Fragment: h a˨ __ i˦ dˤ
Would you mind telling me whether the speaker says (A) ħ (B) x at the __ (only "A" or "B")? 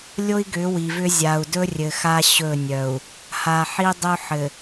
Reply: A